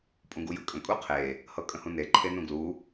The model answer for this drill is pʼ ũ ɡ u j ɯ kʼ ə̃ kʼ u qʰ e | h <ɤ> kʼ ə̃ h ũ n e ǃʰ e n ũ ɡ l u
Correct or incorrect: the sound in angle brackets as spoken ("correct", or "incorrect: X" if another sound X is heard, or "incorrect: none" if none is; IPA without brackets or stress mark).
correct